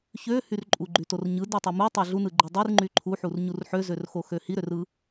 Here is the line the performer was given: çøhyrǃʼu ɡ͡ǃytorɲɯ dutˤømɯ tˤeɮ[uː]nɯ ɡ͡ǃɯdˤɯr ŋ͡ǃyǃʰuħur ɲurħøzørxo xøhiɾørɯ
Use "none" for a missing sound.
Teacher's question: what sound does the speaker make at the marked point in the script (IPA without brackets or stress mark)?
u